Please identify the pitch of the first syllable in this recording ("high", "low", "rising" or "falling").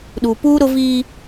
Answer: low